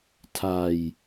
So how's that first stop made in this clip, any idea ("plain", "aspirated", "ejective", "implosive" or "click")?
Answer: aspirated